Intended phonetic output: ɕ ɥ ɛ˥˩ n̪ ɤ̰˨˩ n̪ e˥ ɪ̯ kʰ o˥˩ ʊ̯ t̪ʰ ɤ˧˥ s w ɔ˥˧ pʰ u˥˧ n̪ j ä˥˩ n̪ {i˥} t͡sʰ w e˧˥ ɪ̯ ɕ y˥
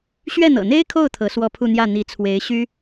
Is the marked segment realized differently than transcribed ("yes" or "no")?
yes